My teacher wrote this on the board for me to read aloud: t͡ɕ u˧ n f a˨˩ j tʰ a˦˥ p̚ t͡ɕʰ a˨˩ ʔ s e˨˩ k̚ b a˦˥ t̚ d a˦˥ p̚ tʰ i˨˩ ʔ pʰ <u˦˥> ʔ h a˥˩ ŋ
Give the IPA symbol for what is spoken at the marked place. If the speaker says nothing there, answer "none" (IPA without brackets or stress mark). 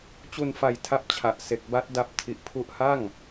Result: u˦˥